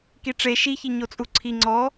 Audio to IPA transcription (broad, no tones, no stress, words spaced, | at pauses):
kiʈ͡ʂe ʃiçi ɲot͡sʼuǀʰi ŋ͡ǀɔ